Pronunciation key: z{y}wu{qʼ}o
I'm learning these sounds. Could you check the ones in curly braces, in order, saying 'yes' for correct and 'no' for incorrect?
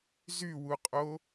yes, yes

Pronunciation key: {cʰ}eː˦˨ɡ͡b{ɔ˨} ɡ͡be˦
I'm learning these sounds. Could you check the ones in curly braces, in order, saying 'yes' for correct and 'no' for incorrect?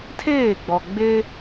no, yes

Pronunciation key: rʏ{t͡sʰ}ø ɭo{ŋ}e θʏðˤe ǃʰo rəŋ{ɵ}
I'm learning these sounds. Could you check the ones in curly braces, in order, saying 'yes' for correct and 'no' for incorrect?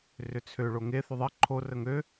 yes, yes, no

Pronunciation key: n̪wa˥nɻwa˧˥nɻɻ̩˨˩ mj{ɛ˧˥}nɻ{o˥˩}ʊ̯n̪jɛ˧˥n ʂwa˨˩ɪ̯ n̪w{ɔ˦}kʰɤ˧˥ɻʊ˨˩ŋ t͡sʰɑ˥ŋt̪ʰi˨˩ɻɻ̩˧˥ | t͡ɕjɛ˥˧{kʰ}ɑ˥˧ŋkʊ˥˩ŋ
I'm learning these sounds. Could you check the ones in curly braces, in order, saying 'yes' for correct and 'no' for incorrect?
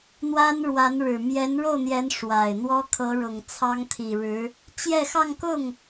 yes, yes, no, no

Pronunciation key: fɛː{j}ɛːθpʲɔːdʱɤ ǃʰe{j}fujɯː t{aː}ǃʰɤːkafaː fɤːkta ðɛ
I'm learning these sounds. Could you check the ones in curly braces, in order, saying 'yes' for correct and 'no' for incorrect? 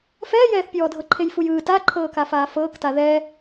yes, yes, no

